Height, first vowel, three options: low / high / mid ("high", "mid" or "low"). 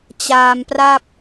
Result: low